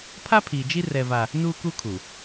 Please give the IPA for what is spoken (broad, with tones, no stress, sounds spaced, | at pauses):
pʰ a˦ pʰ iː˨ d͡ʒ i˦ r ɛ˦ v a˦ | n uː˦ k u˦ kʰ u˨